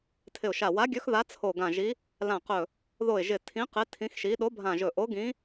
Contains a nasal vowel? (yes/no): yes